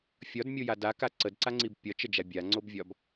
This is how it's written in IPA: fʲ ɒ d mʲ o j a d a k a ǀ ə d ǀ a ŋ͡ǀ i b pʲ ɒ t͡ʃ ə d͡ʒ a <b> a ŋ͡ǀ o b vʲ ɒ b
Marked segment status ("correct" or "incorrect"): incorrect